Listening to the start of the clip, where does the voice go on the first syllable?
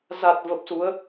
low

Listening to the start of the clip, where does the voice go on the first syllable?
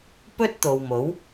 high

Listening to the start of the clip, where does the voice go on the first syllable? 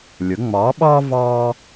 rising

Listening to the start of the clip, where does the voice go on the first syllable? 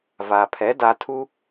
low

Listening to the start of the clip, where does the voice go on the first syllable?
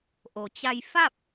low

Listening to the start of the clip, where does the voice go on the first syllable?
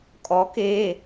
rising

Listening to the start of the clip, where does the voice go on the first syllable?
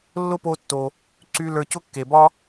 high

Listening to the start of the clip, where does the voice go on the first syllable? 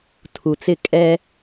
low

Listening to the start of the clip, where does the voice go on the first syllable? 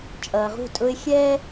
low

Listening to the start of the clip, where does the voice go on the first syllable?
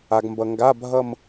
low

